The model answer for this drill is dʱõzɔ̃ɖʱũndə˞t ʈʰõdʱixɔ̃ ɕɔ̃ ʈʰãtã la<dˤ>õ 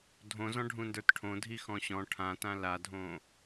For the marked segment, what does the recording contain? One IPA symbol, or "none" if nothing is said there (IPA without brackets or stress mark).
dʱ